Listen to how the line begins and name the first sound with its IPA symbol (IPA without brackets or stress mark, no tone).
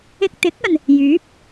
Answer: ɪ